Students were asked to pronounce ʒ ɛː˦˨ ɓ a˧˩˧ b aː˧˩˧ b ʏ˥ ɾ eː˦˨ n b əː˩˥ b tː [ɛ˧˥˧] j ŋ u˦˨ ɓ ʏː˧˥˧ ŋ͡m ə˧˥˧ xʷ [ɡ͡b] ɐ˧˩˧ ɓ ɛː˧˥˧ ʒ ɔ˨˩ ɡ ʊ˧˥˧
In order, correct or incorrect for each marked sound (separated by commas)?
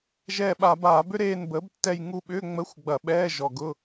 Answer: incorrect, correct